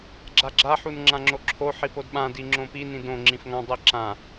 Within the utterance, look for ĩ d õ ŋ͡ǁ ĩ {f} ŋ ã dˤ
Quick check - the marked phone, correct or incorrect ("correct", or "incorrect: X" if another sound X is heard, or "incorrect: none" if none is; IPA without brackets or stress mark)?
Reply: correct